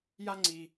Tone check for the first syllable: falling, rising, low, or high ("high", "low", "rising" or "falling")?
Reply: high